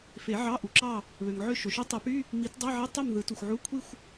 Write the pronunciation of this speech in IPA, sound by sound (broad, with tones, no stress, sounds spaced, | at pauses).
f e˨˩˦ ʕ ɑ˧˥˧ ʔ u˩ ǁ ɑ˥˨ | β ø˩ ŋ ʕ ø˥˨ ʃ o˩ ʃ y˥ tˤ e˨˩˦ p y˧˥˧ | m i˨˩˦ t dˤ ɑ˧˥˧ ʕ e˧˥˧ tˤ ɯ˥˨ m ð ɯ˨˩˦ t u˩ xʷ ʕ u˧˥˧ kʷʰ i˥˨ xʷ